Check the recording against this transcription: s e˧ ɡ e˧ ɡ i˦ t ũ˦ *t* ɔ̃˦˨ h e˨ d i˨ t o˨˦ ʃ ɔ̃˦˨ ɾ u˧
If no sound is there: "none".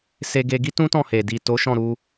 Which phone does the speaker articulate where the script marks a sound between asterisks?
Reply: t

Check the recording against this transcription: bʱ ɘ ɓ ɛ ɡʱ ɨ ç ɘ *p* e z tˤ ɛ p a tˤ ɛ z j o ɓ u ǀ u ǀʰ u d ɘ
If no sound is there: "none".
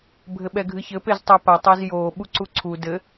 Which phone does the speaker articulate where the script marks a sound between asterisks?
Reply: p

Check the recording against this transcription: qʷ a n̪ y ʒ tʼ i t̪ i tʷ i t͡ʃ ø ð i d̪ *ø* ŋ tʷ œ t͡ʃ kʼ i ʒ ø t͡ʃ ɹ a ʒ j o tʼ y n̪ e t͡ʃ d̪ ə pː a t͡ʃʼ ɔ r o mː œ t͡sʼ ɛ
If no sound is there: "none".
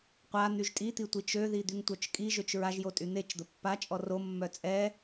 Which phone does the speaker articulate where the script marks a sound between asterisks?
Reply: y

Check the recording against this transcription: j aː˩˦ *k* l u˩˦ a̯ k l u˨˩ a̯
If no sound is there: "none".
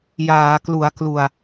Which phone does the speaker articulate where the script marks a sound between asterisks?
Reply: k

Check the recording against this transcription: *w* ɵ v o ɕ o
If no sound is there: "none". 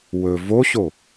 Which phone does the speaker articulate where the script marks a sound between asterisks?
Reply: w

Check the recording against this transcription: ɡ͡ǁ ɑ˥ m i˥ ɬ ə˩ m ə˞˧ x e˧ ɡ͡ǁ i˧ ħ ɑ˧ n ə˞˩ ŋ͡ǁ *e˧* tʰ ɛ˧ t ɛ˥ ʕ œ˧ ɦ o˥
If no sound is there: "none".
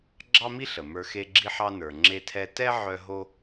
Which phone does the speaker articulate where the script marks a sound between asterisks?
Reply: e˧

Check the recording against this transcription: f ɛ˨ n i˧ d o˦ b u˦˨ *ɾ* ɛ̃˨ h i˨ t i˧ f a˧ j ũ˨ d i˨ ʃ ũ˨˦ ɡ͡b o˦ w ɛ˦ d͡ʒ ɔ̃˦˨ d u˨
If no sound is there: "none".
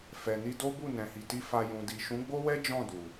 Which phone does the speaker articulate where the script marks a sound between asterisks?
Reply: n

